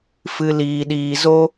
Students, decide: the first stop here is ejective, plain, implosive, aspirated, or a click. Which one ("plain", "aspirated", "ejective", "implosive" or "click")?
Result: implosive